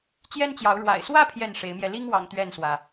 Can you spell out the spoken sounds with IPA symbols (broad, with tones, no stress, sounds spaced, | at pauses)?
t͡ɕ j ɛ˦ n t͡ɕ j ɑ˨˦ ʊ̯ ɻ w a̰˨˩ ɪ̯ s w ä˦ pʰ j ɛ˥˨ n ʂ e˨˦ ɪ̯ m j ɛ˧ l i˦ ŋ w ɑ̰˨˩ ŋ t̪ ɥ ɛ˥˨ n s w ä˩